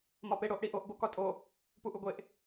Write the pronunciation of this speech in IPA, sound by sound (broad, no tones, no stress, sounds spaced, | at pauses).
m ɒ p e ɽ o ʔ ɽ i ʔ o ʔ b o k ɒ tʼ o | p u ʔ u ɡʷ e ʔ